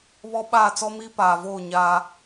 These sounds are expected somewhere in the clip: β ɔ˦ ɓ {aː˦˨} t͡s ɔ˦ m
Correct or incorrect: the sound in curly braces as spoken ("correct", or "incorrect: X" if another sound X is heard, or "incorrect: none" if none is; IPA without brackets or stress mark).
correct